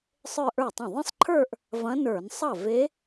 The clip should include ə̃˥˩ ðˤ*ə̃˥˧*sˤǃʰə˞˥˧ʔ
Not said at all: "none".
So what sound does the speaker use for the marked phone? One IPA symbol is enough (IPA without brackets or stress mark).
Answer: ə̃˥˧